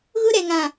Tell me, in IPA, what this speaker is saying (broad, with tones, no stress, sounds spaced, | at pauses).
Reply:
ɣ ʊ˦ ɾ ɛ˨ ŋ ã˨